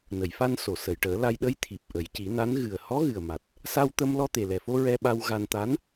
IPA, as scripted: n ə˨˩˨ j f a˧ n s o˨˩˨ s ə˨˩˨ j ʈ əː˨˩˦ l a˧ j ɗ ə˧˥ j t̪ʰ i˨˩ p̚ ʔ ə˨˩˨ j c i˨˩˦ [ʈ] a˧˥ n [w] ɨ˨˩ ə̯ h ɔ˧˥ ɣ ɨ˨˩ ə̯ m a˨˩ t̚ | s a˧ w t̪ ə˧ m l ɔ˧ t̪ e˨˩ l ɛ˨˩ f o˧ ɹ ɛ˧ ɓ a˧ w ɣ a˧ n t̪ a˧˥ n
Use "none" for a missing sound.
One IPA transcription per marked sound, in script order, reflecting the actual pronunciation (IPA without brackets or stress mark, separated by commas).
n, ɣ